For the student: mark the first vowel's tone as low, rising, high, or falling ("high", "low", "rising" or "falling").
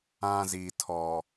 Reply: high